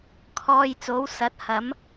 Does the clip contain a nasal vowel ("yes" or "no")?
no